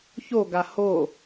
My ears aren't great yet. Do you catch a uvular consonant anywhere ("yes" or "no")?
no